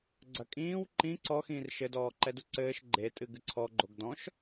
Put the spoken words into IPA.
ɡ͡ǀɐkʼĩːw ǃĩ ǀɔxĩːr ʃɘdɔː ǃɛduǀɘːʃ ɡ͡ǃetʼɨ ɡɨǀʰɔ ɡ͡ǃoɡdɔ̃ʃ

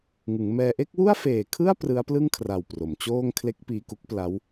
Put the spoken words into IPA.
ŋɯ˩˦ŋmɛː˧ ʔe˥˩k̚wu˥˩a̯feː˨˩kʰɯ˥˩a̯ prɯ˦˥a̯plɯ˥˩ŋkʰra˨˩w pro˩˦mt͡ɕoː˥˩ŋ kʰle˦˥k̚piː˧ku˦˥k̚ pla˦˥w

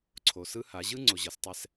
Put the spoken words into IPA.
ǀʰo˨sɯ˦ha˨˦ ʑɯ˦ ŋ͡ǀo˨ʑʌ˨˦stˤɛ˦s

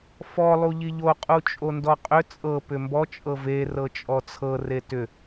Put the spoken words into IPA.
fɔ lˠuʎiʎo qʼut͡ʃʼondɔqʼʏ t͡sʼɤ pʏmbɔ t͡ʃʼɤve rɤt͡ʃʼɔt͡sʰɤ retʏ

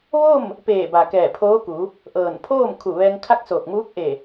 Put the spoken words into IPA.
ʋo˥˨m | peː˧˩ba˩ kɛː˧˩pʰoː˧˥ku˩˧ | ʔɤː˧˩npʰoː˥˨m kʰu˧˩ʋɛː˧ŋkʰa˥˨k̚ soː˧˩k̚muː˧˥k̚ʔe˧˩

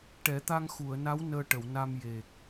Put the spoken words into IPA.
ʈɛ˨˩˦ t̪a˧ŋxu˨˩˨ə̯na˧˥w nəː˧ʈə˨˩˨wna˧m je˨˩k̚

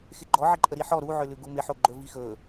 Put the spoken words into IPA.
xɪɡ͡ǃɔʕɪǃʼə ɾiħɔ ɾuʕʏ lʉɡumɪħo ɡ͡ǃɵvixɵ

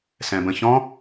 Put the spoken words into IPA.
sɛ̃bə̃çɔ̃

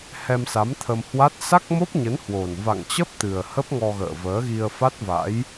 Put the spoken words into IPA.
hɛ˧msa˨˦mt̪ʰə˧mhwa˦˥t̚ sa˦˥k̚mo˦˥p̚ɲə˨˦n hwo˨˩n va̰˧˨ŋt͡ɕə˦˥p̚ t̪ɨ˨˩ə̯ hə˦˥p̚ŋɔ˧ɣə̰ː˧˨ vəː˨˦ɣi˧ə̯fa˦˥t̚va̰˧˥j

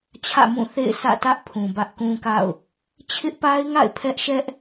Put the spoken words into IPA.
t͡ɕʰä̰˦˨mũ˦˨θḛ˦˨ɪ̯ sʰä̰˦˨ tä˦ʔ pʰũ˨bä˦ʔkũ˦ka̰˦˨ʊ̯ | t͡ɕʰɪ˦ʔpa˦ɪ̯ŋa̰˦˨ɪ̯ pʰɛ˦ʔʃɛ˦ʔ

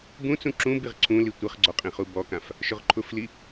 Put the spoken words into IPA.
bũt͡sũ ǁũbiʁ ǀʰũli tʷɪχɡ͡ǀɔ qʼĩχubɔkãf | ʃʊʁǃʰʊfli

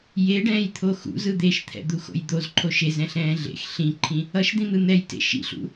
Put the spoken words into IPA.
jeɖɛ̃ːjt̪ʰo xṵzɯ d̪eʃt̪ʰɛ̰d̪uxo̰j d̪ozǃʰo ʃezɛ̃ɬɛ̃ː ɮḛx ɬĩǃʰĩ | ʌʃd̪ĩn̪ɯ n̪ɛjtḛ ʃḭɬṵ

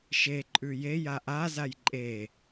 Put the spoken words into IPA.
ʃe ǃʼʉje jaʔa zajǃʼe

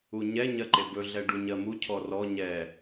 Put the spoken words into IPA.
uɲɛ ɲɜǃebɵ ɮɛɖuɲɜmu cʰɔrɔ ɲɛ

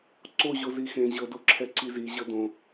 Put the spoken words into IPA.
ǀo ʑozixẽ ʑɤdoǁʰɛ ǀizi ʑɤdõ

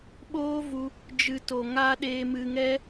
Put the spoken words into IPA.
ɓoː˦vu˧ | d͡ʒɨ˧to˨ ŋa˦ ɗeː˧mɨ˧ŋɛ˦

